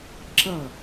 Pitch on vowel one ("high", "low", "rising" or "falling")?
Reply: falling